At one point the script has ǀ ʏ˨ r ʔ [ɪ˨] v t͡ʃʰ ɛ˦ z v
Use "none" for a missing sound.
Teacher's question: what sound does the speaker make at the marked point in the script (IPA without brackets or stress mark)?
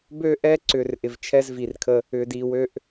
ɪ˨